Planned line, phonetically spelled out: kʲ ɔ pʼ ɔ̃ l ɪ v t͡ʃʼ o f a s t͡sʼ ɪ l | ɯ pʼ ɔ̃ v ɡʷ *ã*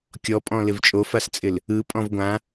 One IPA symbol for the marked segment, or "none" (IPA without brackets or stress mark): ã